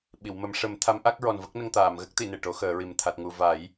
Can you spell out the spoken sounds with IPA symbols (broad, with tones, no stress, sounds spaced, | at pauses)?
ɓ i˨˩˨ w m ə˨˩˦ m ʂ ə˨˩˦ m t̪ʰ a˧˥ m ʔ a˦˥ k̚ ɹ ɔ˨˩ n v ə˦˥ k̚ n ə˧ ŋ t̪ aː˨˩˨ m ɣ ə˦˥ k̚ t̪ i˨˩˨ n e˨˩ ʈ o˧˥ x əː˨˩˦ ɹ i˨˩ m t̪ʰ a˨˩ t̚ ŋ u˨˩ v a˨˩˦ j